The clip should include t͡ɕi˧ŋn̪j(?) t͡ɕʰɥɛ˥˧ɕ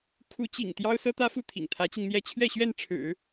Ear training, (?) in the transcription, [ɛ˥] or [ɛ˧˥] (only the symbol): ɛ˥